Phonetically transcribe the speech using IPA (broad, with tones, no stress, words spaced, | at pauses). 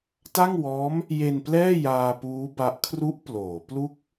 ta˥˩ŋwɔː˦˥m | je˧nplɛː˥˩ jaː˧puː˦˥ba˦˥ʔ kʰru˦˥ʔ ploː˩˦ plu˥˩k̚